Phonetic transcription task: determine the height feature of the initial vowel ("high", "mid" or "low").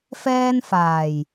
mid